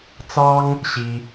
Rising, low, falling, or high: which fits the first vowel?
high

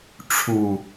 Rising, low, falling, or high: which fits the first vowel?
low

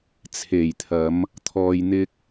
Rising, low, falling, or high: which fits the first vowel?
low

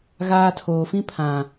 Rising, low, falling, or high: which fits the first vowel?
high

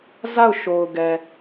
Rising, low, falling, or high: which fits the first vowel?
falling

